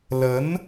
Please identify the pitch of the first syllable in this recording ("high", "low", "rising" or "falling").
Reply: rising